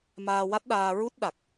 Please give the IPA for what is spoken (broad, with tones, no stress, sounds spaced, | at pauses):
m aː˧ w a˦˥ t̚ ɗ aː˧ ɹ u˦˥ t̚ ɗ a˨˩ k̚